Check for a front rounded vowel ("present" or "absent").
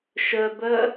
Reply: present